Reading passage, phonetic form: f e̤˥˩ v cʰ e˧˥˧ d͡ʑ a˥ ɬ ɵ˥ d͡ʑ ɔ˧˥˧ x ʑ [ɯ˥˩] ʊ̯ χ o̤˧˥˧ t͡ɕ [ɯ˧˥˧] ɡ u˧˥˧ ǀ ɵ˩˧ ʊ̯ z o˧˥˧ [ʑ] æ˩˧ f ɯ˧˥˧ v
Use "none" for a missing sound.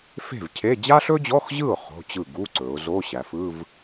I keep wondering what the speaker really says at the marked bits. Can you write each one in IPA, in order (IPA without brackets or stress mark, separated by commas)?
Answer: ɯ˥˩, ɯ˥˩, ɕ